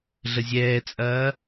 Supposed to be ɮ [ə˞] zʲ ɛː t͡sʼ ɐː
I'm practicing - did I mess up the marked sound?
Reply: yes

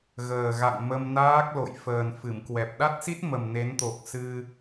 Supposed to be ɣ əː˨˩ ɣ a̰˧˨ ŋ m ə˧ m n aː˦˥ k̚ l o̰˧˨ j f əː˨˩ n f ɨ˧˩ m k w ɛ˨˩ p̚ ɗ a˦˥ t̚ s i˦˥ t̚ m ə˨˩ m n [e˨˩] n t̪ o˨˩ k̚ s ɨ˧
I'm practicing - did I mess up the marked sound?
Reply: yes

